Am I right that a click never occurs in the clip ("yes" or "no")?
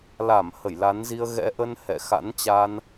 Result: yes